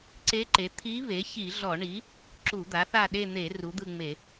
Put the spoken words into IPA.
ǀ e˧˥ ǃ e˩˥ t̪ʰ i˧˥ β e˩˥ ç i˧˩˧ ɮ ɔ˧˩˧ ɳ i˩˥ | ǁ u˧˩˧ d̪ a˩˥ θ a˦˨ ɗ e˦˨ n̪ e˧˩˧ r u˩˥ d̪ ɯ˦˨ ŋ͡m e˧˩˧

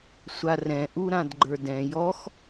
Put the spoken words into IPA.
sʷ a r ɛ̃ ʔ u ɾ ã d ɡ͡ǃ ə˞ d ɛ̃ j ɔ x

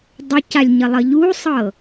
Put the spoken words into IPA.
dˤ ə c a lʲ ɲ ə lˠ ə ʎ u sˤ ɤ

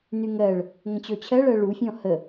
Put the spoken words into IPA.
n y ŋ ɜ ɭ | ŋ ə̃ t͡ɕ ɔ t͡ɕʰ ɜ ɭ ɜ ɭ u fʲ ɔ̃ h ə

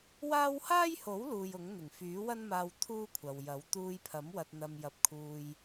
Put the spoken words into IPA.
w aː˥ w h aː˥ j h o˨˥ w l uː˨ j ʊ˨˥ ŋ n̪ ɪ˨˩ ŋ f yː˨˥ w ɐ˥ n m aː˧ w t̪ʰ uː˥ kʷʰ ɐ˨ w j ɐ˨˥ w t̪ uː˧ j pʰ ɐ˨˥ m w ɐ˧ t̚ n̪ ɐ˧ m j ɐ˧ p̚ kʰ uː˧ j

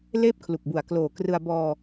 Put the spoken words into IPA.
l eː˥˩ p̚ kʰ l u˨˩ k̚ b u˨˩ a̯ k l oː˨˩ k r ɯ˧ a̯ b ɔː˧

